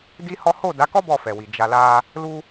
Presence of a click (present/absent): absent